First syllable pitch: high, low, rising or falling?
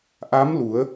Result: rising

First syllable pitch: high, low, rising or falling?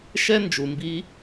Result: high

